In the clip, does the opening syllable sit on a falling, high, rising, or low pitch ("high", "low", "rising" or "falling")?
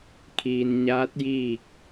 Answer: low